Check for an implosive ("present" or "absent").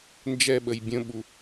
present